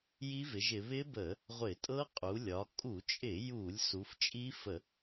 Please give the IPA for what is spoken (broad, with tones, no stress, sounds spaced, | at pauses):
j i˦˥ v ɪ˩˧ ʒ ɪ˩˧ β ɪ˦˥ b ə˧˩˧ | ʁʷ ɪ˧˩˧ tʼ ɤ˦˥ qʼ u˩˧ lʲ ɒ˩˧ kʼ u˧˩˧ t͡ʃʼ ɪ˧˩˧ j u˧˩˧ lʲ s u˩˧ f t͡ʃʼ i˦˥ f ə˧˩˧